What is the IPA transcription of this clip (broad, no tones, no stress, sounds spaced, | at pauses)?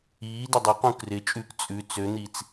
iː d ɪ dˤ ɪ q ũ k r ɪ t͡ʃʼ ʉ k t͡sʼ ʉ t͡s ø n̪ i t͡s